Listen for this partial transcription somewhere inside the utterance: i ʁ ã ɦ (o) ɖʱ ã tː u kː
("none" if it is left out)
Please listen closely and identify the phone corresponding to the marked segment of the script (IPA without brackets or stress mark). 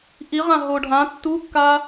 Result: o